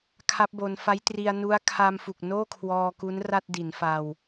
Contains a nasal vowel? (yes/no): no